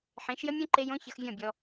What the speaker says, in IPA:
ħ ẽ˨˦ ʃ j ə˦ mʲ õ˦ ǃ e˦ j õ˦ ç ə˧ x vʲ ɔ̃˦˨ bʲ ɔ˧

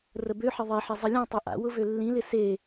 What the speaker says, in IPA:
r ə b ø ħ ɪ ðˤ ɪ ħ ɪ zˤ ɪ lʲ ɔ̃ tˤ ø ʔ a̰ w ʊ v ø lː ĩ l ɪ s e

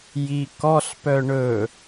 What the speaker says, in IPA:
j i k ɔ ɬ p œ ɳ ɵ

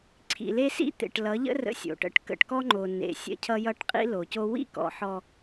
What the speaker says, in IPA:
ǀʰ ḭ˨ l e˦ s ḭ˦ t̪ ḛ˨ ʈ l ʌ˨˦ ʎ ə̰˦ r ə̰˦ sʲ o̰˨ ʈ ə̰˦ ʈ k ə̰˨ ʈ k ɔ˦ ŋ͡ǃ o˨ n ḛ˨ sʲ ə̰˦ cʰ ʌ˦ j ʌ˦ ʈ qʼ ḭ˦ l o˨ c o˦ w ḭ˦ k ɔ̰˨ ħ ɔ˦

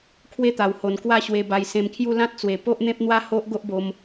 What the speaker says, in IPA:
kʰ w e˦ t̪ a˨˩ w h o˨˩ n k w a˥˧ ɕ w e˧ b a˧ j s ẽ˧ m kʰ j u˥˧ l ã˦ t̚ t͡s w e˨˩ p o˦ ʔ n̪ ẽ˦ p̚ n̪ w a˦ h o˦ ʔ ɡ o˦ ʔ b o˧ m

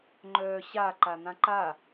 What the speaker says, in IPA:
ŋ͡ǃ œː ɕ a ǃ a n̪ ã ǃ a

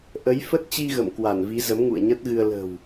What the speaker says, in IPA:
ʔ ə˨˦ j f ə˦˥ t̚ t͡ɕ i˧ ɣ ə̰˧˨ m k w a˧˩ n v i˨˦ z ə˨˦ m ŋ ṵ˧˨ ə̯ ɲ ə˦˥ t̚ ɣ ɨ˧ ə̯ l ə̤˨˩ w

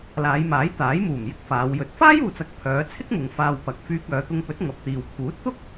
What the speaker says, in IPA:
l aː˨˧ j m aː˨˥ j t̪ aː˨˥ j m uː˨˩ m j ɪ˥ k̚ f aː˨˧ w j ɵ˧ t̚ f aː˥ j uː˨ t͡s ɐ˨˥ k̚ pʰ œː˨˧ t͡sʰ ɪ˥ k̚ m ʊ˨ ŋ f aː˧ w p ɐ˨ k̚ f yː˧ k̚ œː˨˧ t̪ ʊ˧ ŋ p ɵ˨˥ t̚ ŋ ɐ˨ p̚ t̪ iː˨ w pʰ uː˨˥ t̚ t̪ ʊ˥ k̚

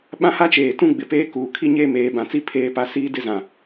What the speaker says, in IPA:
ɓ ã˦ h a˦ t͡ʃ eː˨ t ũ˦ ɡ͡b ɪ˨ p eː˦ k uː˨ kʰ i˦ ɲ eː˦ m eː˨˦ b ã˨ t͡s i˦ pʰ eː˦ p a˦ s iː˦ d ɪ˦ z ã˨

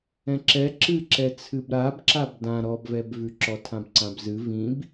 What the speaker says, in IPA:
ɛ̃ ǁ ɛ ǁ ɨ ǁ ɛ t͡sʰ ɨ b ɾ a b ǁ a b d ã ɾ ɔ b v ɛ b v ʉ ǁ ɔ tʰ ã b ǀ ã b z ɨ v ĩ b

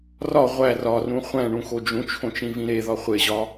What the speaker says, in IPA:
r ɒ ʁʷ æ r ɒ r ũ χʷ æ̃ ɳ ũ x o d͡ʒ ũ t͡ʃʰ õ t͡ʃ ĩ v ĩ ɾ e ð ɒ χʷ e ʑ ɒ

